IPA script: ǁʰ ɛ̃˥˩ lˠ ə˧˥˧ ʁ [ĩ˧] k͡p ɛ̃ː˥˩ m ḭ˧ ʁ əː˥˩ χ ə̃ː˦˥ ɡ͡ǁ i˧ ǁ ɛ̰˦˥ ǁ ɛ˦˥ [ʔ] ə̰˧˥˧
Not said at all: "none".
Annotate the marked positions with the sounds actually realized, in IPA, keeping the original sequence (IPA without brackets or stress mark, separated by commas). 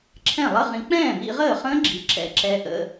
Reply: ĩ˧, ʔ